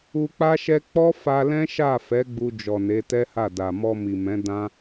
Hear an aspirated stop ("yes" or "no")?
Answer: no